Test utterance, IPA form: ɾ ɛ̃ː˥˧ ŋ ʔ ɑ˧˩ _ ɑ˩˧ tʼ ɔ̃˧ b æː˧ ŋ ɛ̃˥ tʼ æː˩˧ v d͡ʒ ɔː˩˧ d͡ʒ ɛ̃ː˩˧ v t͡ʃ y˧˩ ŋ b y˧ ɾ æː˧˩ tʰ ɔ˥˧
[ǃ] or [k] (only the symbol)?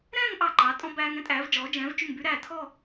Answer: ǃ